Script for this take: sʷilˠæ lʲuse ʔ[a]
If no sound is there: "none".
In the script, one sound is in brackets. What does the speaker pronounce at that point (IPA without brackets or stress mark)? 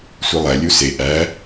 æ